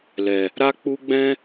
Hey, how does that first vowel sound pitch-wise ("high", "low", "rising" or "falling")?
low